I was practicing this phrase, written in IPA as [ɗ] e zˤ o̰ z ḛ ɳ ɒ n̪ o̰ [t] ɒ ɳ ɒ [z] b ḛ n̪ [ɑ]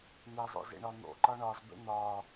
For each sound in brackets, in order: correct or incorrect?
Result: incorrect: n̪, incorrect: ǃ, correct, incorrect: ɒ

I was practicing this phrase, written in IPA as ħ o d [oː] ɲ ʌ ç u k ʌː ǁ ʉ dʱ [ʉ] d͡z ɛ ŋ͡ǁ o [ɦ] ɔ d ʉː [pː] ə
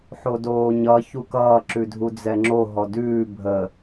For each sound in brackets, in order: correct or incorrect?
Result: correct, incorrect: u, correct, incorrect: bʱ

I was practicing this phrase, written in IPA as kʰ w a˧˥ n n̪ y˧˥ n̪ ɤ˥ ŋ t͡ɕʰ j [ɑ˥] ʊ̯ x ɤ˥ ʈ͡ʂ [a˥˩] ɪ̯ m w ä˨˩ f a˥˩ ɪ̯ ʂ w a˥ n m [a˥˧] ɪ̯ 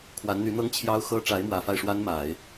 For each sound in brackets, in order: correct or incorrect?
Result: correct, incorrect: a˧˥, incorrect: a˨˩˦

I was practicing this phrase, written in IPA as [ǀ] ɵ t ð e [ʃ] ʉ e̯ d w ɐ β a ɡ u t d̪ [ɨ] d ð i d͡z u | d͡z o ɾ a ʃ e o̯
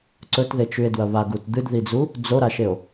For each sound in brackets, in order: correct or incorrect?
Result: correct, incorrect: t͡ʃ, correct

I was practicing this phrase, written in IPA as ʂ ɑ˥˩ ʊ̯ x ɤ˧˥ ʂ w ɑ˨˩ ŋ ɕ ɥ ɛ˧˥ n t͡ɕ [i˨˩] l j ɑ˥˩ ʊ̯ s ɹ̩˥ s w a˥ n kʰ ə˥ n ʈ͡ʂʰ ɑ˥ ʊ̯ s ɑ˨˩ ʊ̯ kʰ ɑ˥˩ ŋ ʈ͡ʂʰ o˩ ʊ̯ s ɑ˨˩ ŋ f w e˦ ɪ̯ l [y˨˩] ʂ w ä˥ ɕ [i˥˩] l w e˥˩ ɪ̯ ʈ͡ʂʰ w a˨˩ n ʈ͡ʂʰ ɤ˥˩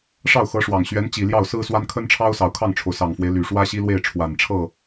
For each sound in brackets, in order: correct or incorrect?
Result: correct, correct, incorrect: i˥

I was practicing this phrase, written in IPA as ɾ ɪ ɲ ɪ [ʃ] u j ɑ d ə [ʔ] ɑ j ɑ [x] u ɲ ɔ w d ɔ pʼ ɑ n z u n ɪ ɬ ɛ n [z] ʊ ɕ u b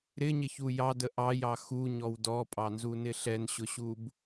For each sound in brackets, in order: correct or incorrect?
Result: incorrect: ç, correct, correct, incorrect: ɕ

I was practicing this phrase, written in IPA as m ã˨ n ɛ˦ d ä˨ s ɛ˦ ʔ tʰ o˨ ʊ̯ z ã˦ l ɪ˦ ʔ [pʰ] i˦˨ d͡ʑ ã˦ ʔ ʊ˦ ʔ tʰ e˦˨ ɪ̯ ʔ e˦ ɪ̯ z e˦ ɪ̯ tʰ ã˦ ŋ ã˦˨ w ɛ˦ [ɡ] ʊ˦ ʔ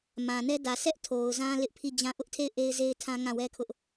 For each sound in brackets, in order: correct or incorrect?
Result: correct, incorrect: kʰ

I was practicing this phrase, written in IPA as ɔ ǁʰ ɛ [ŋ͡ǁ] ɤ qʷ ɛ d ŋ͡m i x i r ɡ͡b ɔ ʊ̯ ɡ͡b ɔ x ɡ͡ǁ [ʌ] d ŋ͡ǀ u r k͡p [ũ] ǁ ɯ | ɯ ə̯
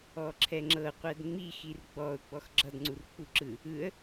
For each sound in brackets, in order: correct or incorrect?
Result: correct, correct, incorrect: u

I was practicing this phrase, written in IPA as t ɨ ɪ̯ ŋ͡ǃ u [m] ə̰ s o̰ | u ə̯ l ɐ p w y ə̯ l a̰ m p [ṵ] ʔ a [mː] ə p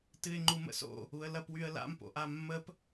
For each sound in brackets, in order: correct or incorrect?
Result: correct, incorrect: o̰, correct

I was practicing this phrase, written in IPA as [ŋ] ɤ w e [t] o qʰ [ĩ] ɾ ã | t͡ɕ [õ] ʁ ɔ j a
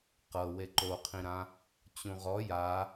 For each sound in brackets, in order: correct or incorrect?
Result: incorrect: q, incorrect: ǃ, correct, incorrect: ũ

